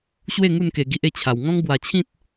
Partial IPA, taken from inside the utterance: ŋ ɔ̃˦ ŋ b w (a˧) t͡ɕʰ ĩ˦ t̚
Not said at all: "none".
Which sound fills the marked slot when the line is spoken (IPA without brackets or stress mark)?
a˧